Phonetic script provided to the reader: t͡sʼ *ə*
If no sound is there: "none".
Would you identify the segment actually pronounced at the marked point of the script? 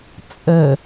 ə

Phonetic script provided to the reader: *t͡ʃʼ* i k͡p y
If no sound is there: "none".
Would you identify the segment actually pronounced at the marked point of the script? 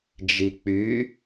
d͡ʒ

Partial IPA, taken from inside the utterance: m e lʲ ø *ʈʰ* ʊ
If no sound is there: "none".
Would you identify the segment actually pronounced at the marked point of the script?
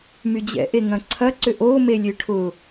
ʈʰ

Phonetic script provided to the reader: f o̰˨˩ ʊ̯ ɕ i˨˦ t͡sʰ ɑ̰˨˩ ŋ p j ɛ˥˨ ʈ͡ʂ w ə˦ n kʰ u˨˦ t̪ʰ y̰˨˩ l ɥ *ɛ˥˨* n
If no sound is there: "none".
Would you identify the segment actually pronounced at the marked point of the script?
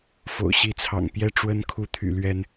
ɛ˨˦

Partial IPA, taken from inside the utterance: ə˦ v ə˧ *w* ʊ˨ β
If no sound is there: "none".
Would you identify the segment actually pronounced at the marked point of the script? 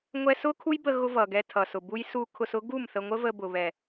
b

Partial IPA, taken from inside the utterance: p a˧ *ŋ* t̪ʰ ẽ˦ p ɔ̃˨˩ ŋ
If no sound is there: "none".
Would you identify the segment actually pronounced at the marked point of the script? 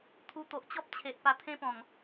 none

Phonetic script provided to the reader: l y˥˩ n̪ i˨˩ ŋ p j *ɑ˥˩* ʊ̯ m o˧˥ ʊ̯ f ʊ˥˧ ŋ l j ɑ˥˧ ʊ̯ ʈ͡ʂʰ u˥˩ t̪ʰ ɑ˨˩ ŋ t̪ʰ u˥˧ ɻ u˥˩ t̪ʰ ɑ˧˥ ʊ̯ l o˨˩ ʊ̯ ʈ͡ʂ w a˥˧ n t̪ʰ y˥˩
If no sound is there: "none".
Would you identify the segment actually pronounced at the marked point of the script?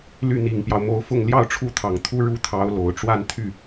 ɑ˦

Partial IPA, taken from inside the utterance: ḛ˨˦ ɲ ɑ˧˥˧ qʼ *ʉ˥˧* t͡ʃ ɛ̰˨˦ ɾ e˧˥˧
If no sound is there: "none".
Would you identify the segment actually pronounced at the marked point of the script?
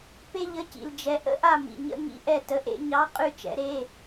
ʉ˥˧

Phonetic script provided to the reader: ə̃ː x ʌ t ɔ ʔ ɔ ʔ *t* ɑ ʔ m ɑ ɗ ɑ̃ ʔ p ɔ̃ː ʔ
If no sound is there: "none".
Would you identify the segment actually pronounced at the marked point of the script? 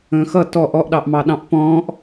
ɗ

